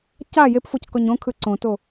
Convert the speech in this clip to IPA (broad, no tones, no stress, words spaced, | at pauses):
ca jepfockɔɲ õkʰɯ ǀõto